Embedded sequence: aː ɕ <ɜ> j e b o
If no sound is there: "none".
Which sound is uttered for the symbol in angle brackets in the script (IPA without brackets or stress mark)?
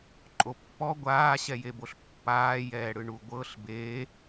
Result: ɛ